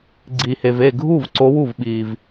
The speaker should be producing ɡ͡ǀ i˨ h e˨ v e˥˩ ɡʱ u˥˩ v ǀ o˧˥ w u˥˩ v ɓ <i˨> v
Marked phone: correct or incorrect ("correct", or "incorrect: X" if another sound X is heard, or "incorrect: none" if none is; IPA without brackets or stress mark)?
correct